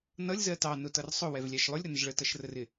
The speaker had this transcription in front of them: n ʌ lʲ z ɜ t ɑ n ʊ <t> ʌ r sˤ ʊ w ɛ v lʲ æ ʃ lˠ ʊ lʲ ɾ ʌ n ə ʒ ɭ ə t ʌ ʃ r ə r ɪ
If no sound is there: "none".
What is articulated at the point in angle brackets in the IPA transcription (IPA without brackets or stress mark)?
t